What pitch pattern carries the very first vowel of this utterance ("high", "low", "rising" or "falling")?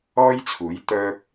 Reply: high